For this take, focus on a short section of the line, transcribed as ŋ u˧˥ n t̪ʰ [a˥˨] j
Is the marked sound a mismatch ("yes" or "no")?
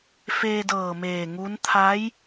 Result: yes